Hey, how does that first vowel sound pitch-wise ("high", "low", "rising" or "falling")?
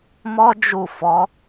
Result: high